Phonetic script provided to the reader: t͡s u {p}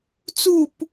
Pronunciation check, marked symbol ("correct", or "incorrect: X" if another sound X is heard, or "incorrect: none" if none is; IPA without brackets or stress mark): correct